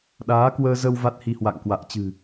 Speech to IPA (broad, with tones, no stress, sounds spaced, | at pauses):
ɗ aː˨˦ k w əː˧ z ə˧ w v a˦˥ t̚ h i˧ h w a̰˧˨ ŋ k w a̰ː˧˨ t͡ɕ ɨ̤˨˩